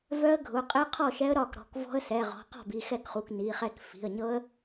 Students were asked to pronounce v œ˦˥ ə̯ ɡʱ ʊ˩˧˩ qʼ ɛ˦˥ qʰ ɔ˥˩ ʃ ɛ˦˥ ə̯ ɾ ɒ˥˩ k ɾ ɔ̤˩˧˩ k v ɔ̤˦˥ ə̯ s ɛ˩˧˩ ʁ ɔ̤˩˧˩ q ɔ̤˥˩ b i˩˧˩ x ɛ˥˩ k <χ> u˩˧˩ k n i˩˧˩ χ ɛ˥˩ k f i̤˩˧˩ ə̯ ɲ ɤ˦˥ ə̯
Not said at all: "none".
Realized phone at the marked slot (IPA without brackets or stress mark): χ